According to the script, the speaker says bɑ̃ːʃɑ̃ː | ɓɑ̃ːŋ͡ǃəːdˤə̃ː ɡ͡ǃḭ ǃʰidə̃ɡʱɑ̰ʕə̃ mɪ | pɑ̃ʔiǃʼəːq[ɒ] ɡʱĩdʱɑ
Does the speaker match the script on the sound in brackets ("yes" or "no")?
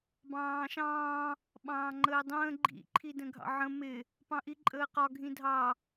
yes